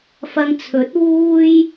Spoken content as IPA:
f ɐ˧ ŋ t͡sʰ ɵ˨˥ t̚ w uː˥ j

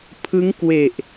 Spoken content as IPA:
pʰ ɯ˦˥ ŋ k w e˨˩ ʔ

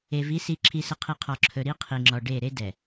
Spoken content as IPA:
e˨ v i˨˦ s i˨ ǁʰ i˨ s ə˨ qʰ i˨ qʰ ɔ˨ ǁʰ ɵ˨ ɾ i˦ qʰ i˨ ŋ͡ǁ ɔ˨ ɖ e˦˨ ɾ e˦ d ɛ˨

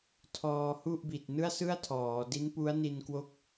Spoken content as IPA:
tʰ ɔː˧ h u˥˩ ʔ b i˨˩ t̚ n ɯ˥˩ a̯ s ɯ˥˩ a̯ tʰ ɔː˩˦ d i˦˥ n p u˦˥ a̯ n i˧ n k w o˦˥ k̚

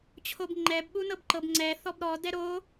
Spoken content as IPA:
t͡ɕʰ o b ŋ͡ǃ ɛ b ɓ u n ɤ b ǃ ɤ b ŋ͡ǀ ɛ θ ɔ b ɾ ɔ d ɛ ɾ o

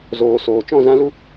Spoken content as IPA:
z oː˨ s oː˨ t͡ʃ ɔ̃˦˨ z ã˦ l u˦

